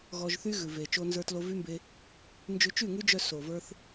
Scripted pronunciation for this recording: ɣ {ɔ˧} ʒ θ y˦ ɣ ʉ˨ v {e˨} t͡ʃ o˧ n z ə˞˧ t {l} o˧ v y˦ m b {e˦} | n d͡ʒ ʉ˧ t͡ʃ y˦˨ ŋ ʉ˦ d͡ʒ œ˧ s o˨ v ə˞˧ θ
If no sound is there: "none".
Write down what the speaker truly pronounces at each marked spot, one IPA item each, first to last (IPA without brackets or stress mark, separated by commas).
ɔ˧, e˨, l, e˧